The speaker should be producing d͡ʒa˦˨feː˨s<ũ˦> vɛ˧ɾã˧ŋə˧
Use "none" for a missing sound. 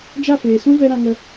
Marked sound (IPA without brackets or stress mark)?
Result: ũ˦